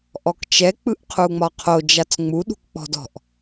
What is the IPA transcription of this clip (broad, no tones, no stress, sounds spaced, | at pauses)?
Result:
ʔ ɔ k t͡ʃ ɛ k͡p ɯ ʔ qʰ u ŋ͡m ɒ qʰ o d͡ʒ a t͡s ŋ͡m u ɗ ṳ k k͡p ɔ̤ d ɔ̤ ʔ